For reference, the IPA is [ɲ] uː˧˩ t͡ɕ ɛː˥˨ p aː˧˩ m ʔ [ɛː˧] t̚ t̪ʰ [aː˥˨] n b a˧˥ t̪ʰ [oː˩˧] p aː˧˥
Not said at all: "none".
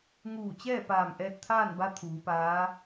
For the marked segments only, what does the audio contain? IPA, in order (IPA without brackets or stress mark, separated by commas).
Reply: ŋ, ɛː˧, aː˥˨, uː˩˧